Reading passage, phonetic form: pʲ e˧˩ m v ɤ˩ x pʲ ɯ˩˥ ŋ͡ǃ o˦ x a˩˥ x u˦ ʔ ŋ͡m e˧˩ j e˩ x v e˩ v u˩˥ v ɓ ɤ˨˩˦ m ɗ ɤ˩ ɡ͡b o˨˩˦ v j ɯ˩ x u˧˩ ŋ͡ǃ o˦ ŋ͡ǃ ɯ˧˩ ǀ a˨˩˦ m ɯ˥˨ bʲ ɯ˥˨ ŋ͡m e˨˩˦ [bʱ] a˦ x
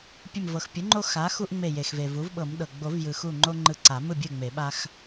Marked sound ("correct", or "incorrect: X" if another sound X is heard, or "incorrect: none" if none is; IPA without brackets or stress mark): incorrect: ɓ